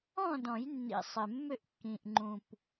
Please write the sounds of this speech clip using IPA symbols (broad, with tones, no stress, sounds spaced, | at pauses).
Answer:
ɔ̃˥˨ d ɔ̃˨˩˦ j nː ḭ˨˩ sˤ ɪ˨˩ mː ʏ˥˨ ʔ kː ĩ˨˩ ʔ ŋ͡ǃ ũ˨˩ p